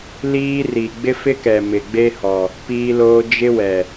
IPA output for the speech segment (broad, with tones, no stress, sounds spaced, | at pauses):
l iː˦ r i˨ ɡ͡b ɪ˦ f ɪ˦ k ɛ˨ m ɪ˨ ɡ͡b e˦ h ɔ˨ | p iː˦ l oː˦ d͡ʒ ɪ˦ w ɛ˨